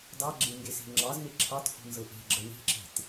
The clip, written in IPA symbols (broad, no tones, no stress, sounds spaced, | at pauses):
d ɑ ɡ͡ǁ e ŋ ɡ e s e̤ ŋ͡ǁ ɑ z n e ǁʰ ɑ t h ṳ n z ɤ ʔ e̤ ɡ͡ǁ ə w e̤ ǁ e̤ t